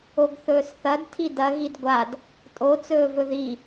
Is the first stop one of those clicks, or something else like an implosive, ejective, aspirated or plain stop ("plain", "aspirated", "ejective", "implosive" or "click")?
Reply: plain